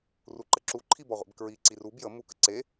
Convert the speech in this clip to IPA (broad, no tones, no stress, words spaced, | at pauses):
ruǃəǁu ǃʰibɔʁʷḛbkɹi ǀirub jə mukə̰ǀe